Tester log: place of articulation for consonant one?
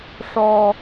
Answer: retroflex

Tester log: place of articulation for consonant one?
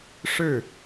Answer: retroflex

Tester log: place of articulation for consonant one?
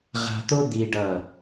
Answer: uvular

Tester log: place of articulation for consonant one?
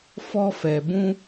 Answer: labial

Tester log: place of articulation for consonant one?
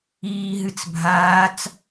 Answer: glottal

